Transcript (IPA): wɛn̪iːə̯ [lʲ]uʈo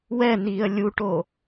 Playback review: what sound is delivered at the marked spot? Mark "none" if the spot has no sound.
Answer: lʲ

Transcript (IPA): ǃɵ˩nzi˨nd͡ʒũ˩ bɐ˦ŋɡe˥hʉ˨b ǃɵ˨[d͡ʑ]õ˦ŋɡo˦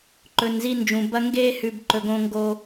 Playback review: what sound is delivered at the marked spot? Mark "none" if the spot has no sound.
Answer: ɡ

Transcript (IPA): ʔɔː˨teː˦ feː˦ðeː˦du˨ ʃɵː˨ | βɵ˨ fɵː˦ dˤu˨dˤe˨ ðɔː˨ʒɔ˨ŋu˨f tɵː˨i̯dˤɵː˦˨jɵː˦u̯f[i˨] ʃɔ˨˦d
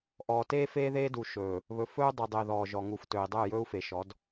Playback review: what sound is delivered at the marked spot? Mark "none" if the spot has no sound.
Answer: e˨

